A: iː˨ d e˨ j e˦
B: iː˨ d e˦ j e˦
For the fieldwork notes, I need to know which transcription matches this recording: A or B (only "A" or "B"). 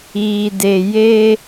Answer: A